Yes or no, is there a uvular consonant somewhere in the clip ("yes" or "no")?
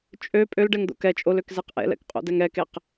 yes